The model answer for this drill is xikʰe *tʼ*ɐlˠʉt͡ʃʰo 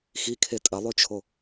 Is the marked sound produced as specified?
yes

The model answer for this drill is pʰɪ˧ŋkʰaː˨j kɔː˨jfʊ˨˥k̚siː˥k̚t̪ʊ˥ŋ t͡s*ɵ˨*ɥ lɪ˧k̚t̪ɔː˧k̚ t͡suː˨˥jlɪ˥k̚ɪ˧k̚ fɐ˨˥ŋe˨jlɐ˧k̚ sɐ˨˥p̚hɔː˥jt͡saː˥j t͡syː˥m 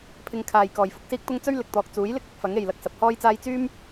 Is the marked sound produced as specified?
no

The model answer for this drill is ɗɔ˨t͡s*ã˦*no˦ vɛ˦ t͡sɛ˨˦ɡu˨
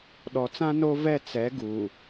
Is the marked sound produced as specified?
yes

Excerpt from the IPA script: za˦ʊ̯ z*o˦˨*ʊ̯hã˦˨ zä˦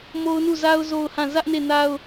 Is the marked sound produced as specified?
yes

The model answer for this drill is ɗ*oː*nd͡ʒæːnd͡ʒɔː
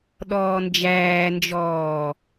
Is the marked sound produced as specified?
no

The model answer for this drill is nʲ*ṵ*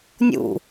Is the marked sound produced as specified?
yes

